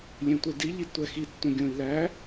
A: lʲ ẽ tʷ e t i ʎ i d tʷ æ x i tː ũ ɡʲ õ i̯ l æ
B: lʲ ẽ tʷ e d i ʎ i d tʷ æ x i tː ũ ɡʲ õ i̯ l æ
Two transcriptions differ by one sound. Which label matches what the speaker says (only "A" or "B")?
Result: B